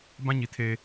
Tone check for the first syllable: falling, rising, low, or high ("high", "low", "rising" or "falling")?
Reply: high